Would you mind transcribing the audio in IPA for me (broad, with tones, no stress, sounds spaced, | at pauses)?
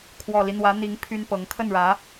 kʰ w ɔ˨˩ l i˦ n̪ w ä˧˥ n̪ i˧˥ ŋ pʰ y˥ n p ɤ˧˥ ŋ kʰ ə˥˩ n ɻ ä˧˥